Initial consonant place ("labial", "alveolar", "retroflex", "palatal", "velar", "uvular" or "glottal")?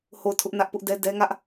glottal